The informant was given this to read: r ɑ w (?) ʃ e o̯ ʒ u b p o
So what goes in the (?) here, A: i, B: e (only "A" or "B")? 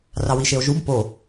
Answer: A